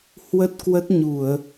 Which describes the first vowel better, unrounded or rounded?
unrounded